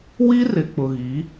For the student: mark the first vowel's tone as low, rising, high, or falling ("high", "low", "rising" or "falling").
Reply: high